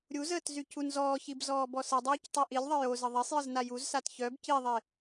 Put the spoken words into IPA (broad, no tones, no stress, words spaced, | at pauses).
ɾʲuzəːt zycunzɔːçib zɔːbɔsədˤœːc tˤyʔilʲðˤə jo zəðˤesˤjəz najuzsat çœb ciðˤe